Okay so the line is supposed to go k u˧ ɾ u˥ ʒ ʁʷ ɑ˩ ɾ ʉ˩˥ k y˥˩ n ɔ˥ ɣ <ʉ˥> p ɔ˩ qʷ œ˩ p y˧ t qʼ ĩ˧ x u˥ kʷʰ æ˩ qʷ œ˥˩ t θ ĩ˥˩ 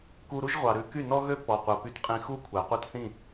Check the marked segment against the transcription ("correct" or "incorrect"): incorrect